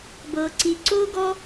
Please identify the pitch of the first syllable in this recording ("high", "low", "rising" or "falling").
low